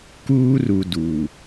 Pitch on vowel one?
high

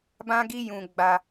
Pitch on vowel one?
high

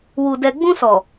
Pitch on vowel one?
low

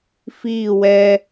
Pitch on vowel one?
falling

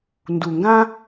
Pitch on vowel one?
low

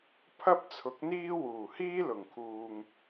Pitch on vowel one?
high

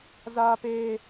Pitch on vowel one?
high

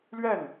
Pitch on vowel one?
falling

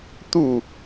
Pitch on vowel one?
falling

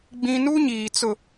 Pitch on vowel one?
high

